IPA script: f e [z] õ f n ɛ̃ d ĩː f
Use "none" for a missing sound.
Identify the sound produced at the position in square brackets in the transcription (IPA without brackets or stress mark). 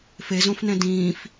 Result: z